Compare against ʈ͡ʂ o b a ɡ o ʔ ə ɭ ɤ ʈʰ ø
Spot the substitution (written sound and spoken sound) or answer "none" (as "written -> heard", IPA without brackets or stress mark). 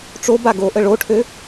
ɤ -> o